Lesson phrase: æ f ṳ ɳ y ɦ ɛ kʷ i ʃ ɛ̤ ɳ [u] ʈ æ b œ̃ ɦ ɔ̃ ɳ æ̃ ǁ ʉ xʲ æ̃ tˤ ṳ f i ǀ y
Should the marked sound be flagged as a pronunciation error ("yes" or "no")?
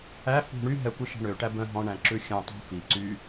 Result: yes